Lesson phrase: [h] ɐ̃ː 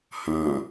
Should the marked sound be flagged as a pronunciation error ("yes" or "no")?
no